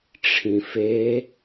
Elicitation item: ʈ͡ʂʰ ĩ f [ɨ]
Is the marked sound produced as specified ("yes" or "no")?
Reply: no